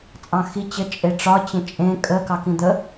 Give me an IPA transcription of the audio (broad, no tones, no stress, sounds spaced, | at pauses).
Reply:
t͡sʼ ɑ̃ x i t͡ɕ ə t͡ʃʼ e ʈ͡ʂ ɒ t͡ɕ ə̃ t͡ʃʼ ẽ kʼ ə k ɑ k ĩ d̪ ə